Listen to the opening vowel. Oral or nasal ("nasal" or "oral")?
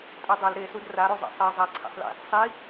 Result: oral